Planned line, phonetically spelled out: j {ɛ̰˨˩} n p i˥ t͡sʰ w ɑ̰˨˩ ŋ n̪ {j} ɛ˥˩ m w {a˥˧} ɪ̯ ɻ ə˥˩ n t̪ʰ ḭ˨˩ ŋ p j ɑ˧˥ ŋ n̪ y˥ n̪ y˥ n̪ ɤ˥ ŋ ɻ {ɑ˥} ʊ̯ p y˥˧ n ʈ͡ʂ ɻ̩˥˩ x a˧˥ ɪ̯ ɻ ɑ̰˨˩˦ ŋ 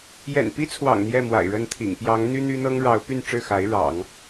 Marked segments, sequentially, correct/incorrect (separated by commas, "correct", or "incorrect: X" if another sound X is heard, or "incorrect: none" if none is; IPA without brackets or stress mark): correct, correct, incorrect: a̰˨˩, incorrect: ɑ˧˥